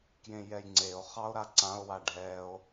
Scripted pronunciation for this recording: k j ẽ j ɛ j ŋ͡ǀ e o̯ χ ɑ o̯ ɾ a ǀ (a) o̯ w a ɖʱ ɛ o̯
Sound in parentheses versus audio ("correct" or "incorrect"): incorrect